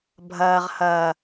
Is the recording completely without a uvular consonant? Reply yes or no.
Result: no